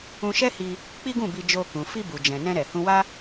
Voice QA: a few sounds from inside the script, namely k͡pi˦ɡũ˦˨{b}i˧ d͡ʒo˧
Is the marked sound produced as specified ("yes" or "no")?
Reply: yes